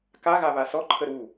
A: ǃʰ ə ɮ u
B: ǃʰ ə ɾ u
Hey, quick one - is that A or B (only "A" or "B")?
B